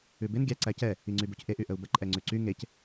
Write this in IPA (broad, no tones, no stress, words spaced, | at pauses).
ʉbɪn ɡʲæ ǀæcɛ | iŋ͡ǀybucʔe ʔyʔəu̯bə ǃʼɛŋ͡ǀʉǀy ŋec